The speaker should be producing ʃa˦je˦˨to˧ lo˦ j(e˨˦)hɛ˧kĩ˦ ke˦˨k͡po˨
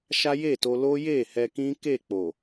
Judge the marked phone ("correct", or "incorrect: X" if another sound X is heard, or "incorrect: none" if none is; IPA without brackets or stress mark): incorrect: e˦˨